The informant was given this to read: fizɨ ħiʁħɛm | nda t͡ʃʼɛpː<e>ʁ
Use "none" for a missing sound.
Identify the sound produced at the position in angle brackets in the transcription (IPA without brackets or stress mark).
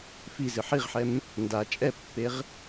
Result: e